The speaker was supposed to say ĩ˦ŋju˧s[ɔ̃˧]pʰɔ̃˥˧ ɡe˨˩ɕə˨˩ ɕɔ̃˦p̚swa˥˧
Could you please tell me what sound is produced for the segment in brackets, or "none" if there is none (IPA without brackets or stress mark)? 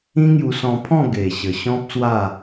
ɔ̃˧